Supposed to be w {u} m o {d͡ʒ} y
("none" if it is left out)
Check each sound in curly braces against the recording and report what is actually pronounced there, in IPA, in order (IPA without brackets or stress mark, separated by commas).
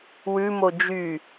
ʉ, d͡ʒ